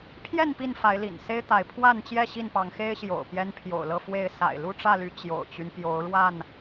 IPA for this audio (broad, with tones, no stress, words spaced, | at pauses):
pʰjɛ˥˨n pi˥˨nfa˨˦ɪ̯lḭ˨˩n se˦ɪ̯t̪a˨˦ɪ̯pʰwa˥˨nt͡ɕjɛ˥˨ ɕi˥˨npɑ˨˦ŋxe˦ɪ̯ɕjo̰˨˩ʊ̯ pjɛ˦npʰjo̰˨˩ʊ̯lɤ˥˨fwe˥˨ɪ̯ sa̰˨˩ɪ̯lu˥˨ʈ͡ʂä˥˨ly˨˦ t͡ɕjo̰˨˩ʊ̯t͡ɕy˦n pjo˨˦ʊ̯ɻwa˥˨n